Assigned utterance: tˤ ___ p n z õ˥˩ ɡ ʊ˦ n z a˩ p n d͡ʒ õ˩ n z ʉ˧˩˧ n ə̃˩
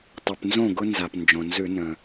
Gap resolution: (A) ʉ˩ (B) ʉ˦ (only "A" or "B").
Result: A